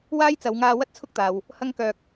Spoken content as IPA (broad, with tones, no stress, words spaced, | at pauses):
waː˥jt͡sɐ˨˧wŋaː˧ wɐ˥t̚t͡sʰʊ˥k̚t̪aː˨w | hɐ˥ŋ kœː˧k̚